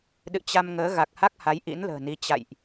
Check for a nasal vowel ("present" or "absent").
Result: absent